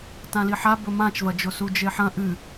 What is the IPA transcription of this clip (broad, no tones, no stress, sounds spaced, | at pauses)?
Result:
t ã l i ħ a b ɵ m ã t͡ʃ v ɐ d͡ʒ o s u d͡ʒ e ħ ɐ̃ ʔ ɨ